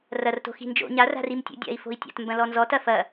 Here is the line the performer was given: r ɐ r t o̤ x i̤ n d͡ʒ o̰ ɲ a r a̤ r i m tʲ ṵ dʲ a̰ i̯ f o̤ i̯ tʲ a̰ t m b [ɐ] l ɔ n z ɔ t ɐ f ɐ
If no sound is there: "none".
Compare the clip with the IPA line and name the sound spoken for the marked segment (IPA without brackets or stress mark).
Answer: ɐ̃